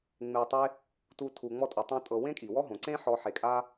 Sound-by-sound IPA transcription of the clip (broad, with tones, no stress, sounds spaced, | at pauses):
ŋ͡m e˧ tˤ e˦ | t u˧ tʰ u˨ ŋ͡m ɔ˧ tʼ u˨ tˤ õ˦ tʼ ɤ˧ w ẽ˦ kʼ i˨ w ɔ˦ ɦ õ˨ ǀ ẽ˦ ħ ɔ˧ ħ e˨ kʼ a˦